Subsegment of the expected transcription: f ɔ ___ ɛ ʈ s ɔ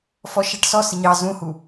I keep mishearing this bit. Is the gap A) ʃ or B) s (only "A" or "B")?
A